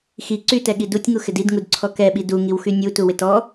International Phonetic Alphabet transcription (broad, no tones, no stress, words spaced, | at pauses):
xi ǀytɛɠi dutʲŋu xɪdidŋud ǀʰɔkɛɓi duŋiwxy nʲu tuwɪtɔ